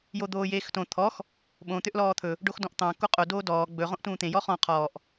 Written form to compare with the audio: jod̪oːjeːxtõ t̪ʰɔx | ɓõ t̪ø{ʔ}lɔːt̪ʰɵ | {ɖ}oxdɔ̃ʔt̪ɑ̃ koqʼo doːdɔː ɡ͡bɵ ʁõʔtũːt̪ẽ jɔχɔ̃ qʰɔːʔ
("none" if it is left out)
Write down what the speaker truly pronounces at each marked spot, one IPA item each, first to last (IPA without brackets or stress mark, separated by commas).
ʔ, ɖ